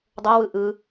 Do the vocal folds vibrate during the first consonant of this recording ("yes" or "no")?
yes